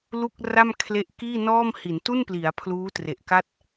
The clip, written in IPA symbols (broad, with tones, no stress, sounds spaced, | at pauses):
l u˥˩ k̚ r a˥˩ m kʰ l e˦˥ ʔ k iː˥˩ n ɔː˥˩ m h i˩˦ n t u˥˩ n p l i˩˦ a̯ pʰ l uː˦˥ t r e˨˩ ʔ k a˥˩ t̚